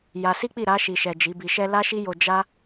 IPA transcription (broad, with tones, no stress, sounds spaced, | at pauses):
j a˧ s i˦ k͡p i˦˨ ɾ a˧ ʃ i˨ ʃ ɛ˨ d͡ʒ i˨˦ b i˧ ʃ ɛ˦ l a˦ ʃ i˦ j o˧ d͡ʒ a˦